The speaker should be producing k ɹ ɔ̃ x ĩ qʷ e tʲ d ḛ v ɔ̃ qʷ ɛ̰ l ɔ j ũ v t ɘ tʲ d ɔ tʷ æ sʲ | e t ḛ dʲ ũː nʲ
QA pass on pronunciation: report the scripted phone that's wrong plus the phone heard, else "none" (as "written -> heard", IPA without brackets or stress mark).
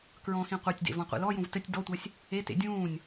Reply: none